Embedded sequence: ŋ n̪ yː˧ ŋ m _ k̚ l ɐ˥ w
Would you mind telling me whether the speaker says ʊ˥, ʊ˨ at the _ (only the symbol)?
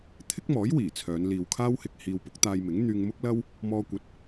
ʊ˥